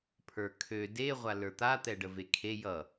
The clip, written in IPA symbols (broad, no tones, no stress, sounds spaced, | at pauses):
pʰ ə˞ kʰ ø d e ʁʷ a l ə˞ t̪ a t̪ ɛ ɖ ə v e kʰ e j ʌ